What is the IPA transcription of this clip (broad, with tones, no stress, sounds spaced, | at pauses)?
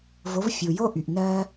v o˨˦ v fʲ u˨ j o˦ ʔ y˨ ʔ n ɜː˦